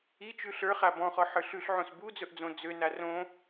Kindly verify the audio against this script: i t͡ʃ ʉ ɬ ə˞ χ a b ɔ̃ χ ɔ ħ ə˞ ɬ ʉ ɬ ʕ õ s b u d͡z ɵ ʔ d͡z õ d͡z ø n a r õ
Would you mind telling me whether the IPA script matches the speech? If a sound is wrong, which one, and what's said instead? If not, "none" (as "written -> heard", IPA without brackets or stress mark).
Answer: none